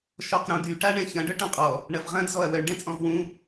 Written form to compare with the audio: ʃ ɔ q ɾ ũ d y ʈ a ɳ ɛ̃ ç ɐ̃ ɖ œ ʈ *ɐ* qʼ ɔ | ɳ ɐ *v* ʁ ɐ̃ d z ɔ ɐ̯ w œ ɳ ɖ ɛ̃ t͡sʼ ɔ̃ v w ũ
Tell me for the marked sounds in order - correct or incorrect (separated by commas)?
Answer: incorrect, correct